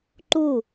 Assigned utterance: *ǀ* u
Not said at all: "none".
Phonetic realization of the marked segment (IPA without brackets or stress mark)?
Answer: ǃ